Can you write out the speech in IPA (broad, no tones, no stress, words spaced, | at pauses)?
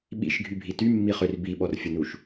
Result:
ɓḭʃɡʱybʱi tymːiχør biɓɔrfʲənuʃ